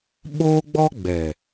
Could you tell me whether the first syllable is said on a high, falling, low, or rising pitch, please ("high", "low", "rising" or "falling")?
high